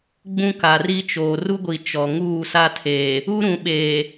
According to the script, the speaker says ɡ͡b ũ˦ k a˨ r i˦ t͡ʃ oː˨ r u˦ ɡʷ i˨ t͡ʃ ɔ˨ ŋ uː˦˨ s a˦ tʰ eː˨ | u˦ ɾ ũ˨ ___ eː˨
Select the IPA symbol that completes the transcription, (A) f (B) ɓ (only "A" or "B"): B